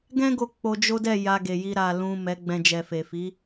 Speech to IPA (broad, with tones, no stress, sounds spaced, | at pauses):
ɡ ɛ̃˦ ɡ o˧ k͡p o˧ d͡ʒ o˦ d ɛ˦˨ j a˧ ɡ e˨ j i˧ ɾ a˨ l ũ˨ m ɛ˨˦ ɡ͡b ɛ̃˧ d͡ʒ ɛ˨ f e˨ f i˨˦